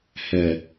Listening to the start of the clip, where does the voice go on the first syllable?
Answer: low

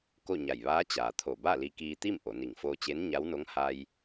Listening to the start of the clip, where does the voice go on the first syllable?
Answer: falling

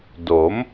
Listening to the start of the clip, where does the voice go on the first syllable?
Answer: rising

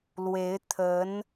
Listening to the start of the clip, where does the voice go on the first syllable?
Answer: rising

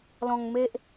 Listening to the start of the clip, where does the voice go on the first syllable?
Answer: low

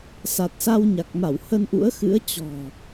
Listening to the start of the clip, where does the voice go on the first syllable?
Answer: low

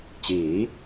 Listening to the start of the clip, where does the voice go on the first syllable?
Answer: rising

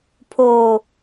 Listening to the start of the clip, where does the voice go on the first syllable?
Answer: low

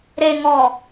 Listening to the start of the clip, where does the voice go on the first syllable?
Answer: low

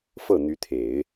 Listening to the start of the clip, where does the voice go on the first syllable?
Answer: falling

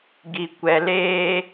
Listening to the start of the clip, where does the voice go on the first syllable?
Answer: low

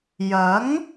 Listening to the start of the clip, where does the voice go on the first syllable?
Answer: rising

